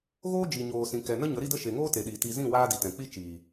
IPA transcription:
ɣ oː˦ d͡ʒ i˨ ɲ oː˨ s ĩ˨ k ɛ˨ n ə˦ ɲ ə˨˦ ɾ i˧ d ə˧ ʃ e˨ ŋ oː˦ t e˨ ɗ iː˨ t i˧ z ĩ˦˨ w aː˧ d i˨ t ɛ̃˨ k͡p i˦ t͡ʃ iː˨

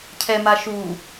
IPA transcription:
cʰ ɛ m a ʃ u

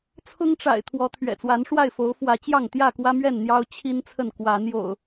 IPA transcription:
t͡sʰ ʊ˦ ŋ ʈ͡ʂ a̰˨˩ ɪ̯ t̪ʰ w ɔ˨˦ t̪ʰ ɥ ɛ̰˨˩ t͡s w a˨˦ n ʂ w a˥˨ ɪ̯ f o˨˦ ʊ̯ f w ä˨˦ t͡ɕ j ɑ˥˨ ŋ t̪ j ä˥˨ k w ä˦ m ɥ ɛ˥˨ n n̪ j ɑ˦ ʊ̯ t͡ɕʰ i˦ n t͡sʰ ə˥˨ n k w a˨˦ n j o̰˨˩ ʊ̯

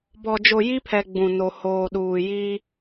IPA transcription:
b ɔ˨ d͡ʒ o˨ j i˦ pʰ ɛ˨ ɡ͡b ũ˨ n o˨ h oː˨ ɗ uː˨ j iː˦

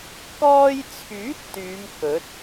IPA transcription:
k ɔː˧ j t͡sʰ yː˨˥ t̚ t̪ yː˨˧ m k ɵ˨˥ t̚

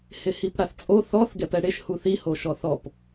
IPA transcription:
h ɪ h i p ɽ a θ t͡sʼ o θ ɔ θ ɡ ɛ p ɛ ɽ e ʃ h u θ i h o ʃ ɔ θ ɔ p

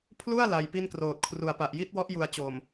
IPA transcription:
pʰ l u˥˩ a̯ l a˧ j p i˥˩ n k r oː˨˩ t̚ kʰ r u˨˩ a̯ p a˨˩ ʔ j i˦˥ t̚ w ɔ˦˥ ʔ j u˨˩ a̯ t͡ɕ oː˨˩ m

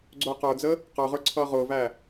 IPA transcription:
ɡ͡ǀ ʊː q ə˞ d͡z ə | q ə˞ ʁ ə˞ ǀʰ ʌː ʁ ʊː v æ

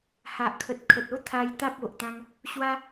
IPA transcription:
h a˨ ʔ kʰ ə˨ t̚ kʰ ə˨ t̚ o˦ t̪ʰ a˧ j t̪ a˦ p̚ o˨ ʔ t̪ ã˦ ŋ | ɕ w a˦

